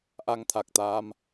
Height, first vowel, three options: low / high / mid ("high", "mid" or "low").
low